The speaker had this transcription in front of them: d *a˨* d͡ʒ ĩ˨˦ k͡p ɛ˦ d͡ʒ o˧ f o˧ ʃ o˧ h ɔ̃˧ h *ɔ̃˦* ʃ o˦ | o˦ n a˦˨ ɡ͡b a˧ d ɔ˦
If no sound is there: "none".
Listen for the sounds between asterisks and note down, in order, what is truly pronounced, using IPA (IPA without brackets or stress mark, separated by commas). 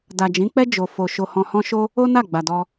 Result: a˨, ɔ̃˦